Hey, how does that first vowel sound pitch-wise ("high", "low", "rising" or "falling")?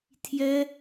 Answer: high